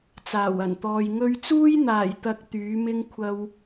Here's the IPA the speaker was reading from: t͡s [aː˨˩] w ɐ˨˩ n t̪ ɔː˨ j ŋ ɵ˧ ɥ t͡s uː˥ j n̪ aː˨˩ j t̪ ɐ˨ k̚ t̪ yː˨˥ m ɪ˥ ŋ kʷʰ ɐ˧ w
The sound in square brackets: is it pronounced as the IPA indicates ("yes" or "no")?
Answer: yes